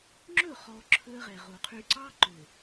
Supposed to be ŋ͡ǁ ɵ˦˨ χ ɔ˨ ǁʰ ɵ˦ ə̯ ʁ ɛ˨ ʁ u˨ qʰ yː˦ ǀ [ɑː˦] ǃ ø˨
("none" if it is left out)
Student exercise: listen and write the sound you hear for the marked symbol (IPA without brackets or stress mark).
ɑː˦